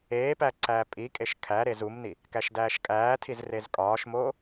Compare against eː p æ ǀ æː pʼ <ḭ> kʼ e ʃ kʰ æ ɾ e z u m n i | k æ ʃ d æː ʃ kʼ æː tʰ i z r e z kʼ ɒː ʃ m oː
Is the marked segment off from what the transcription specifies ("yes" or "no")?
yes